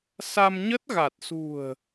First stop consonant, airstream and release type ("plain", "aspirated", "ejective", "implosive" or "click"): plain